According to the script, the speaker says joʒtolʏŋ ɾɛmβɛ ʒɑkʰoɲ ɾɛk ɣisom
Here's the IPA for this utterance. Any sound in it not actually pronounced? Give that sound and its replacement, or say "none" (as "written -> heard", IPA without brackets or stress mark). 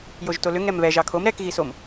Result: ɲ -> m